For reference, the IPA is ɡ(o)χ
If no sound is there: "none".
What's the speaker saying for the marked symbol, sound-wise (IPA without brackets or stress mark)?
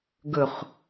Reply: ɵ